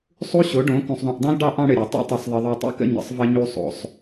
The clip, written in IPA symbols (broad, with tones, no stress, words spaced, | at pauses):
sˤu˦ɕo˨˦ɖõ˨˦ kũ˨sˤðˤũ˨ʔdˤõ˦l ɖɑ˦ʔ ɑ̃˦ɽɘ˨ɾʲɑ˨ tˤṵ˦tˤɘ˨sˤðˤə˨ðˤu˨ tˤṵ˦kə̰˦˨ ɲə̰˨sˤvə˧ɲu˧ sˤo̰˨sˤ